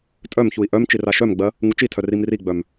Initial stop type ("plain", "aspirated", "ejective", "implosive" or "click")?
ejective